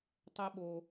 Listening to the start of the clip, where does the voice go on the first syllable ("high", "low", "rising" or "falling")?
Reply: high